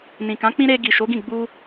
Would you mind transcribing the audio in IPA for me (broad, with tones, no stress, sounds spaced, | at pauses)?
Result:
n ĩ˨ k ã˨˦ k͡p ĩ˦ ɾ e˧ ɡ i˨ ʃ o˨˦ ɡ ĩ˦˨ ɡ͡b u˧